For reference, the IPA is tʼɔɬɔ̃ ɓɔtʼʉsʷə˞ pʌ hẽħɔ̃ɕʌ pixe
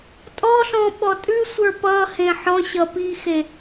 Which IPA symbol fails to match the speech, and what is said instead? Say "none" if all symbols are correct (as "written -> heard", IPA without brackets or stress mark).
none